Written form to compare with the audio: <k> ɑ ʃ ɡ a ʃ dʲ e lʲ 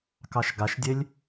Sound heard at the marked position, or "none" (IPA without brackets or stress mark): k